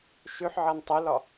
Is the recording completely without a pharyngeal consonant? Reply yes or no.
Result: no